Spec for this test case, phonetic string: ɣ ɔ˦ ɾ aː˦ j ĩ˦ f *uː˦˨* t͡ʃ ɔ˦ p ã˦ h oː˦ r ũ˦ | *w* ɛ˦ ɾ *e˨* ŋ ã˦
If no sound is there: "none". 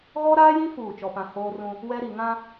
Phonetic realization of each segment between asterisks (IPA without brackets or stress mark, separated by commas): uː˦˨, w, i˨